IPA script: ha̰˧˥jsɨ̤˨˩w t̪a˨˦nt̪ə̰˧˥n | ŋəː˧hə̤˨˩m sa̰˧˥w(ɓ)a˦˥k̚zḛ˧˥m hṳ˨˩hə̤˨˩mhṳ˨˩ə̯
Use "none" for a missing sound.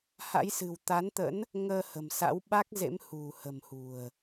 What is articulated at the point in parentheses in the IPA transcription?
ɓ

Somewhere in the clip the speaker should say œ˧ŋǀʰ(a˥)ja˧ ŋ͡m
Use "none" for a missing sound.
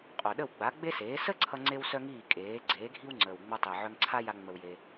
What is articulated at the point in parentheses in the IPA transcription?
a˥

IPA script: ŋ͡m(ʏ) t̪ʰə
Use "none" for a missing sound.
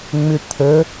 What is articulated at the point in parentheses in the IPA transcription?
ʏ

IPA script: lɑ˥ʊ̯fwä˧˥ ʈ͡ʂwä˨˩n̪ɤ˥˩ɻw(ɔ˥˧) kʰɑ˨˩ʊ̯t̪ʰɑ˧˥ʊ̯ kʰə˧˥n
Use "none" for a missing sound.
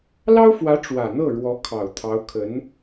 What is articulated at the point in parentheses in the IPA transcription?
ɔ˧˥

